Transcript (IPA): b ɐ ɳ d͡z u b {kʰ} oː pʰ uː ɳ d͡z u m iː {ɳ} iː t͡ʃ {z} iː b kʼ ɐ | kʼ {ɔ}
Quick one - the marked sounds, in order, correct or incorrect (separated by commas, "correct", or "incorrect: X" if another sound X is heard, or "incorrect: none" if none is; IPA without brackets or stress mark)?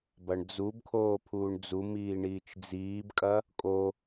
correct, correct, incorrect: d͡z, incorrect: o